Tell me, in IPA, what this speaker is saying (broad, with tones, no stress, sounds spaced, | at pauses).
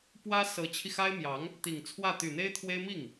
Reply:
p w ä˥ s ɤ˧˥ t͡ɕʰ i˧ x a˥ ɪ̯ m j ɑ˧˥ ŋ | t̪ i˨˩ ŋ t͡sʰ w ä˥˩ t̪ y˨˩ n̪ e˥ ɪ̯ t̪ʰ w e˥ ɪ̯ m i˥˩ ŋ